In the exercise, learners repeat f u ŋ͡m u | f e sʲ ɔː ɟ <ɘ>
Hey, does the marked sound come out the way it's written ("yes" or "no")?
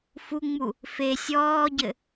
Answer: yes